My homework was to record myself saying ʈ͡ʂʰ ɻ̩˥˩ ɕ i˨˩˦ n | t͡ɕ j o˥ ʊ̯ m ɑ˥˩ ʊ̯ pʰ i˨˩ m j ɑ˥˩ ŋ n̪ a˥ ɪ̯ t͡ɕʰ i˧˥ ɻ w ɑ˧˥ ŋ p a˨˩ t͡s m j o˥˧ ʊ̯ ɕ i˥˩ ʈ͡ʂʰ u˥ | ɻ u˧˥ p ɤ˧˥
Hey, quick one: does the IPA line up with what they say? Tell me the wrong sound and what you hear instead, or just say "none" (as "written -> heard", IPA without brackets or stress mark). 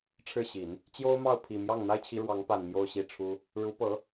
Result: t͡s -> n